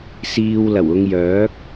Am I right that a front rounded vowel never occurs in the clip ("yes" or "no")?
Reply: no